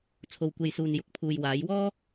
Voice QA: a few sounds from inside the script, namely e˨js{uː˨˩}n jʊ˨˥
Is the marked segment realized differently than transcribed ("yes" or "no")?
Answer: yes